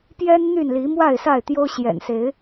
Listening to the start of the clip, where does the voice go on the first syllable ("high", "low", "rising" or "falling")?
high